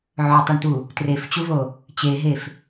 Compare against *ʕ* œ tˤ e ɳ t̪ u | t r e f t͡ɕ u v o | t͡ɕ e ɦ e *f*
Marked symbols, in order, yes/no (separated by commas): yes, yes